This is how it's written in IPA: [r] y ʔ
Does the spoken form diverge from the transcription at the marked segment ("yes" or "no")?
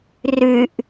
no